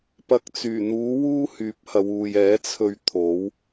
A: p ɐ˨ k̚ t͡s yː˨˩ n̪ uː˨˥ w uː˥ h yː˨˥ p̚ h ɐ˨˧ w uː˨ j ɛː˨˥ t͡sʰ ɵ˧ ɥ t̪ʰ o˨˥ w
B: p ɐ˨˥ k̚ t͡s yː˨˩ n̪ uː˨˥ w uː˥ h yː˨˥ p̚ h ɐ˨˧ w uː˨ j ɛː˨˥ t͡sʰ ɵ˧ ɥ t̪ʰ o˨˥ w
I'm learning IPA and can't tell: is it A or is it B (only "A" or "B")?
A